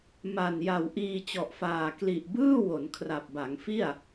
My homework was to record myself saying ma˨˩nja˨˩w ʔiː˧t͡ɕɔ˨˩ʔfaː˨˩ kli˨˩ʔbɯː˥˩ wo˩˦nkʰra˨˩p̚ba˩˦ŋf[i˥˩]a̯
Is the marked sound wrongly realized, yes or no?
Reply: no